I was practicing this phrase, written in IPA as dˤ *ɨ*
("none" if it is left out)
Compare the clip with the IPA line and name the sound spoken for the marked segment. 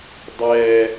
ɛ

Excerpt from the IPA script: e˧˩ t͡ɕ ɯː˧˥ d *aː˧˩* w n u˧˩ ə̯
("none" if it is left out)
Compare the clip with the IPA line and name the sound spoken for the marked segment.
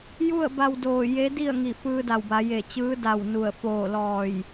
a˧˩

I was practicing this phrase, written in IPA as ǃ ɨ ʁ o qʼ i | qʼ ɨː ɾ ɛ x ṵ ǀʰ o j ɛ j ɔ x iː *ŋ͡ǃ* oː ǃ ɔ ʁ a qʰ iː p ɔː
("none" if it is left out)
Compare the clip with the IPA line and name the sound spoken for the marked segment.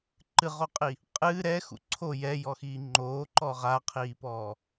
ŋ͡ǃ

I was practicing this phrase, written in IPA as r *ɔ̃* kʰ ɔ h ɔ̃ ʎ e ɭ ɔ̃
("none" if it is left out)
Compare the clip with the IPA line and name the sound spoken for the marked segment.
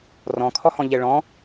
ɔ̃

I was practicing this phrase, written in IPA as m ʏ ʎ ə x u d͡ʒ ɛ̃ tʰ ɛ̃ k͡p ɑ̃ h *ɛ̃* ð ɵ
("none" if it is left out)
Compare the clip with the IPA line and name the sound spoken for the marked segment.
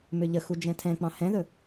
ɛ̃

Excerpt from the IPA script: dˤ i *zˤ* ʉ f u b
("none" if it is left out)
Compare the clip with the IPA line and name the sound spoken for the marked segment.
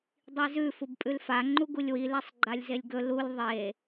z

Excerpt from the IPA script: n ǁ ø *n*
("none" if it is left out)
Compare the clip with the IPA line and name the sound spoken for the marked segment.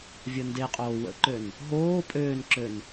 n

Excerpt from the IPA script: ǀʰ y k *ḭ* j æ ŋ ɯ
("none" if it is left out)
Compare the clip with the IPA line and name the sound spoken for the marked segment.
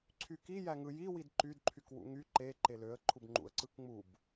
i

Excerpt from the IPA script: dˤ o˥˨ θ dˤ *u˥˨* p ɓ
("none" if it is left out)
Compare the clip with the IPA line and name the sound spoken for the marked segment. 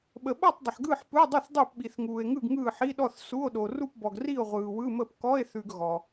u˥˨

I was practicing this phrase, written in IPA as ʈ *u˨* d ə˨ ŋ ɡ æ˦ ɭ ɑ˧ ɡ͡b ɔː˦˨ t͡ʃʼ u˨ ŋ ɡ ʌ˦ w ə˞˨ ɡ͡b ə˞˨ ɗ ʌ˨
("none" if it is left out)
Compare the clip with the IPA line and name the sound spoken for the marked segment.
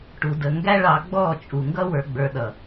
u˨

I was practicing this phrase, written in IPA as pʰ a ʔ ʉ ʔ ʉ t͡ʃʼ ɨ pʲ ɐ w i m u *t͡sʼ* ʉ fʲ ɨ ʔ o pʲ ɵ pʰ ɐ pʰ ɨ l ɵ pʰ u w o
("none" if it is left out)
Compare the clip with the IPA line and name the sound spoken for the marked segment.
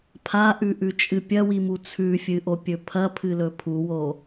t͡sʰ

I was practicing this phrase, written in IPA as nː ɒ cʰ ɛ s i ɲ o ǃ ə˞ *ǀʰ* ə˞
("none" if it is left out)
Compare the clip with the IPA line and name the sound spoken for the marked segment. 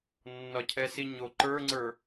ŋ͡ǀ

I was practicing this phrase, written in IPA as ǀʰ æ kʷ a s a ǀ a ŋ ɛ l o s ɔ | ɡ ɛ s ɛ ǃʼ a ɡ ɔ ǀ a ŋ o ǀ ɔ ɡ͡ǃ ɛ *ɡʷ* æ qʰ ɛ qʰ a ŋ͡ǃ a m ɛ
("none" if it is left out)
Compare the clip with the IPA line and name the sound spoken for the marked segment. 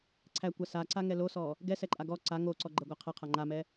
ɡʷ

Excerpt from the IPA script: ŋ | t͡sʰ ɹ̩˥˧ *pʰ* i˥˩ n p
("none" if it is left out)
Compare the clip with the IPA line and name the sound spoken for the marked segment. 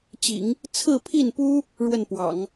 pʰ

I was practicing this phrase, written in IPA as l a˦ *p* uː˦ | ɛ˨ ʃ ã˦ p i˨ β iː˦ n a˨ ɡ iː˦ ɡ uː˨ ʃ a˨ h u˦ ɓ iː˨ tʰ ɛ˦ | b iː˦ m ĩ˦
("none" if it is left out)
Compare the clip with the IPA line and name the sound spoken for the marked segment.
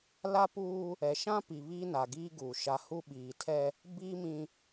p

